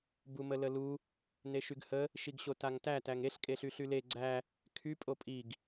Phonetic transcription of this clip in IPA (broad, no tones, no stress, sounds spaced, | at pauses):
b u m ə l ə l u | n e ʃ y ɡ h ə | ʃ i ɡ ɕ o t a ŋ t æ t æ ŋ e ɬ kʼ e ɬ y ɬ y l e ɡ͡ǀ æ | kʰ y pʼ o pʼ i ɡ